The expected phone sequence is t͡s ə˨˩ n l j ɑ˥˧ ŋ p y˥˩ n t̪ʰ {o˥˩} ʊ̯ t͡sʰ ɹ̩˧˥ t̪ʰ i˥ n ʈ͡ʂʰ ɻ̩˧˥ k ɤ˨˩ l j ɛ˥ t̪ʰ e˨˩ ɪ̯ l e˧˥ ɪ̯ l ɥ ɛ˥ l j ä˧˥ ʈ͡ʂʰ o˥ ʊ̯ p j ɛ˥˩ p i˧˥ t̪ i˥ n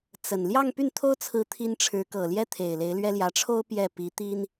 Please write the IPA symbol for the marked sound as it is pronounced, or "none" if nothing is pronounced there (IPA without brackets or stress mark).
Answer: o˥